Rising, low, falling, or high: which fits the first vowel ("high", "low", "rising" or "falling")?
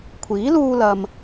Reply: rising